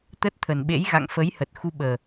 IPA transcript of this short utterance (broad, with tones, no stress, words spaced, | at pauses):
t̪ə˦˥t̚t̪ʰə˨˩nɓḛ˧˥j ɣa̰˧˨ŋfə˨˦j hə˨˩t̚xu˧ɓəː˨˩